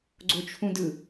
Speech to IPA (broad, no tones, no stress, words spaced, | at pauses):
ɡ͡ǀot͡ʃʰũdɯ